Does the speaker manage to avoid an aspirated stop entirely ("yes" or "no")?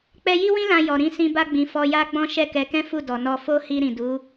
yes